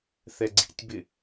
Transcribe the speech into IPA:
θ ɛ ɡ͡ǀ ḭ tʲ b ɪ

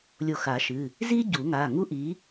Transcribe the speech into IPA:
lʲ o˧˩ x a˨˩˦ ʃ ɨ˩˧˩ | z i˥ ɟ u˨˩˦ ŋ a˩˧˩ ŋ u˥ ʔ i˨˥

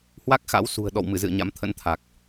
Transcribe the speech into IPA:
h w a˦˥ k̚ x a̰˧˥ w s ṳ˨˩ ə̯ ɗ ɔ̰˧˨ w m ɨ˧˩ z ɨ̰˧˨ ə̯ ɲ a̰˧˥ m t̪ʰ ə̰˧˥ n t̪ʰ a˨˩ k̚

